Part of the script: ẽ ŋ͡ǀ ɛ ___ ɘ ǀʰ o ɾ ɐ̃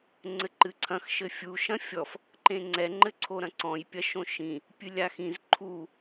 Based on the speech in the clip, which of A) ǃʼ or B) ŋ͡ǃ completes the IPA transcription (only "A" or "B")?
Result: B